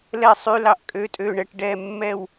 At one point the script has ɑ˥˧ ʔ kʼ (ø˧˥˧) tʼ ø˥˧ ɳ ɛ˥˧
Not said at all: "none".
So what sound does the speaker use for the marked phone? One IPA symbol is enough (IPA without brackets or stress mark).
ø˧˥˧